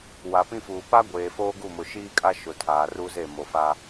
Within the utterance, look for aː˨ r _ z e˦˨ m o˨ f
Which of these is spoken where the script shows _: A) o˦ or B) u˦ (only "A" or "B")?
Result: B